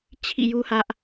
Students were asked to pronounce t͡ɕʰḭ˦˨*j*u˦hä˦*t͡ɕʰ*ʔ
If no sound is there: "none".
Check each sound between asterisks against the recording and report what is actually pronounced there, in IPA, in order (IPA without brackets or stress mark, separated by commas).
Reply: j, none